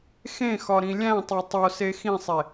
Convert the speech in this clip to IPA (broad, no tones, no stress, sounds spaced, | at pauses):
x ẽ x ɒ ɾ ĩ lʲ æ̃ tˤ o tˤ o s e x ĩ sˤ e